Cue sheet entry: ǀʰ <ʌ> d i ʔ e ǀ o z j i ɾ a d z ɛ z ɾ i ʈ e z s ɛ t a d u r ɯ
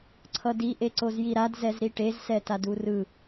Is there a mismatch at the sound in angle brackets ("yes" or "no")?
no